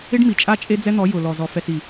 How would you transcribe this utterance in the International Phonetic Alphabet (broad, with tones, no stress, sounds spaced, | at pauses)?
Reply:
ɪ˦ ɖ m i˨ t͡ʃʼ a˦ t͡ʃʼ e˦ d͡z ɛ˦ n̪ ɔ˨˦ j ʊ˨ l ɔ˨ z ɔ˨ f ɛ˨ s i˨